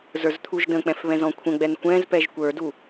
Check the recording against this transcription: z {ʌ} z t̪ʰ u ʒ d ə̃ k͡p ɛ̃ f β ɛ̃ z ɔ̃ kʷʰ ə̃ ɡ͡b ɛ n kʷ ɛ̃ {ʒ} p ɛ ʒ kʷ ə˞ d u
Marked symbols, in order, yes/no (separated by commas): no, no